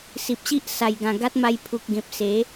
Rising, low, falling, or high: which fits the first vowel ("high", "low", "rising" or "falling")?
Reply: low